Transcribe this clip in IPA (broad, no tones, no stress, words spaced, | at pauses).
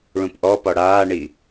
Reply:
ɭũpʔɔpɔ ɽaːɳi